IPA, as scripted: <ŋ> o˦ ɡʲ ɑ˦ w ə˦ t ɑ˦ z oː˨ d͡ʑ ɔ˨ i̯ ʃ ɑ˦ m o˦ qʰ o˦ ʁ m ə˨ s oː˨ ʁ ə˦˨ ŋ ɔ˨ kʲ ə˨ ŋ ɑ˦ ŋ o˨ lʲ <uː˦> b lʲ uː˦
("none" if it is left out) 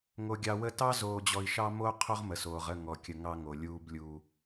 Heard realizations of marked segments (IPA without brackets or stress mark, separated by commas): ŋ, uː˦